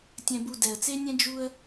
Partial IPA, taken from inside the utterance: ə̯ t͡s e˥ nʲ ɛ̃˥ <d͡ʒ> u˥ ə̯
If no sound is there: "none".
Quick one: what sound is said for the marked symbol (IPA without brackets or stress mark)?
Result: d͡ʒ